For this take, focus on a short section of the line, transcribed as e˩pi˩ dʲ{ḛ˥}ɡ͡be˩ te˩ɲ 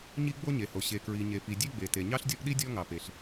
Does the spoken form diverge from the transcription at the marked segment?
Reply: yes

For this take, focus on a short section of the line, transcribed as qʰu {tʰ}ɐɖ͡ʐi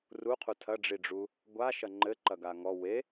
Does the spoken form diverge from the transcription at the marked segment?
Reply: no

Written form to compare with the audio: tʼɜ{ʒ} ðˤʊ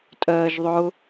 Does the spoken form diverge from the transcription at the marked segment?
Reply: no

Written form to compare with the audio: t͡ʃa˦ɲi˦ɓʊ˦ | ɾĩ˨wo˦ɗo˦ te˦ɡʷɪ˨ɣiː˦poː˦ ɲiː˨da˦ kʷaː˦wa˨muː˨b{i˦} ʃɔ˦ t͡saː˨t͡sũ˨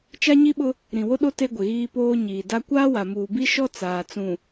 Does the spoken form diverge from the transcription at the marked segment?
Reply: no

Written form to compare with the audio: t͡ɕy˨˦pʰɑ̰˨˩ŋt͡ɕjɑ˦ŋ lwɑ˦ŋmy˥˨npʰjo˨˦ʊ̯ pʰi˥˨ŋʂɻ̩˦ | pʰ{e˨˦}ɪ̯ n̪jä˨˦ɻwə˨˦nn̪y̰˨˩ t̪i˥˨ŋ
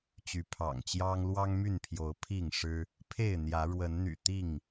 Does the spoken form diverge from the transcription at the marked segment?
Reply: yes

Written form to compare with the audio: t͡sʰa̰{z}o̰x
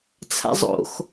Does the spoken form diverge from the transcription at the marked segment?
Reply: yes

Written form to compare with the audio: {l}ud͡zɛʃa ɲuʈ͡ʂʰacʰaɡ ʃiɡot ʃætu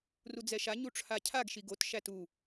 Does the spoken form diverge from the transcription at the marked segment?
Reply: yes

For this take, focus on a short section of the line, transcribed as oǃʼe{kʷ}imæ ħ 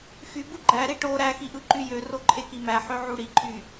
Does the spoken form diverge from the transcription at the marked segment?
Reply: yes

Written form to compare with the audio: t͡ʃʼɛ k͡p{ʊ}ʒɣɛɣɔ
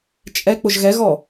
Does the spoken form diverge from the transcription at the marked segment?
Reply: no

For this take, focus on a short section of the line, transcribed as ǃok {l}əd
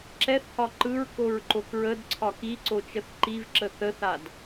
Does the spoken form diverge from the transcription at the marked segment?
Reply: yes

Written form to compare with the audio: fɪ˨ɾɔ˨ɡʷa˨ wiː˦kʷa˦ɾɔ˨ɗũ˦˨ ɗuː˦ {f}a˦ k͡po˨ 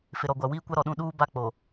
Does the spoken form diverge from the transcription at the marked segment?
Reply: yes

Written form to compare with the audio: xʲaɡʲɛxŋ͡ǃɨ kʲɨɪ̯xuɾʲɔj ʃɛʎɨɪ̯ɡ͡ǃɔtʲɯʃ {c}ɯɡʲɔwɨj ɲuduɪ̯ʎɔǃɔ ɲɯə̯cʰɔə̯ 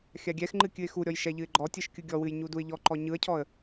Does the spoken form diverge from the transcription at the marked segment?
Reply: yes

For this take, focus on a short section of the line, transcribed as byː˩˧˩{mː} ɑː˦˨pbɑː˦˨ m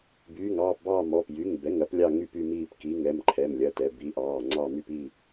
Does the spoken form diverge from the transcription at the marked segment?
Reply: yes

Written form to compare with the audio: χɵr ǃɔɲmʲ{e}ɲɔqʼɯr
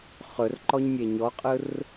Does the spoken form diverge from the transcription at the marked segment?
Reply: no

